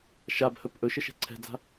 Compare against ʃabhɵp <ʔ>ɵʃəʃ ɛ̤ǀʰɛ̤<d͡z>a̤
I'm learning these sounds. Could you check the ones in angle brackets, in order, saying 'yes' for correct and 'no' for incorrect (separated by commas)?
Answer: yes, yes